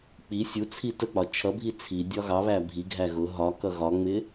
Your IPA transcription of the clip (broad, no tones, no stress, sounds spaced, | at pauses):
k͡p i sʲ u t͡sʰ i t ə k͡p ɒ t͡ʃʰ ʌ bʱ i t͡sʰ i dʲ ɒ ɣ ɑ β æ bʱ i ɡʱ æ ɣ ʊ ɦ ɒ k ʌ ɣ ɒ ŋ͡m ɪ